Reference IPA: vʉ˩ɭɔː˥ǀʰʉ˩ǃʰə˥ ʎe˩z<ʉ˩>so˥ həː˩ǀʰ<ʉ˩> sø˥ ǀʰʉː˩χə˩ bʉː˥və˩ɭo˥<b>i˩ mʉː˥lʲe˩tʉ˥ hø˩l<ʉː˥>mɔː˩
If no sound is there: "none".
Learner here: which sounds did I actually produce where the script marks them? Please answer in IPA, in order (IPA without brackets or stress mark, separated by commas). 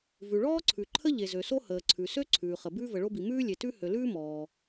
ø˩, ʉ˩, b, ʉː˥